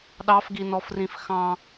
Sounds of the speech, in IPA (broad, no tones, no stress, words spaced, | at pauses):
ɗɑfɡinɔfrĩf xɑ̃